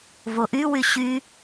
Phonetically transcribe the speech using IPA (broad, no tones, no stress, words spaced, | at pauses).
voʔywy ɕy